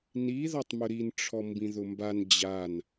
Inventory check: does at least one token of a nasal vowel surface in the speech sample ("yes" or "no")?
yes